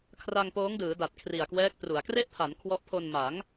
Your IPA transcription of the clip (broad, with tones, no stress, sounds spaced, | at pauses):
kʰ r a˧ ŋ p oː˦˥ ŋ d ɯː˩˦ d a˨˩ t̚ kʰ r i˨˩ a̯ k w ɛː˦˥ k̚ t r u˩˦ a̯ k r e˥˩ ʔ pʰ a˩˦ n kʰ w ɔ˦˥ ʔ pʰ o˧ n m a˩˦ ŋ